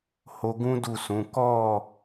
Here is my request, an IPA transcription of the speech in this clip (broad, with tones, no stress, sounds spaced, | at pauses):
h o˧ ɡ ũ˦ d u˦˨ s ũ˨˦ k ɔ˦˨